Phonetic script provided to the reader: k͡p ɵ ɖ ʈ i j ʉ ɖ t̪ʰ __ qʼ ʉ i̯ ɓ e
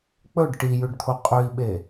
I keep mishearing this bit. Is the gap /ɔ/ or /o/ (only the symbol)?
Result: o